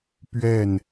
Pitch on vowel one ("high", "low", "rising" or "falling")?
falling